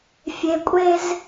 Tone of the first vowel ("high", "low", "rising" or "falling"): high